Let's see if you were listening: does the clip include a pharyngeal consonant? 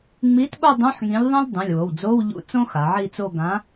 yes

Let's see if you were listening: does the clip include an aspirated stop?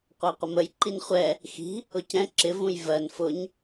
no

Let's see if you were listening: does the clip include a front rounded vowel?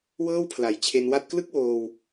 no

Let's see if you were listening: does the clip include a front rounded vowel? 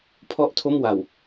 no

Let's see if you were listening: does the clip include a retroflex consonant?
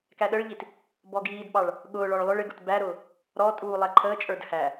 yes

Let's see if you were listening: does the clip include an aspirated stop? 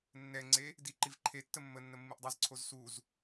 yes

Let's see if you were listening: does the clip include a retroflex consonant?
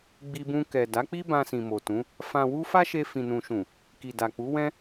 no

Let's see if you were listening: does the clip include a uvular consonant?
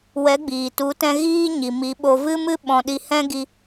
no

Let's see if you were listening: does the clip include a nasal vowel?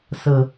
no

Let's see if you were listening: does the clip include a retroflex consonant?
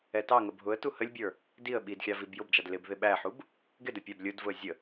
no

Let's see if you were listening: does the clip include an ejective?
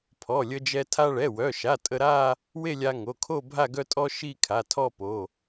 yes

